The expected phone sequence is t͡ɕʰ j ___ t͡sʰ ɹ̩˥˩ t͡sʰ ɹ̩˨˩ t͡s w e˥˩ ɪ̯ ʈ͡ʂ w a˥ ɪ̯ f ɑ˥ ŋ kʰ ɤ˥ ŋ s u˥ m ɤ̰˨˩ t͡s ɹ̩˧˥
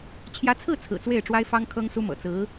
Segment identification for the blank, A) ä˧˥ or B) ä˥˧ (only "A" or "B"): A